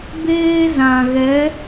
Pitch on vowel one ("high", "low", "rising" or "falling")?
high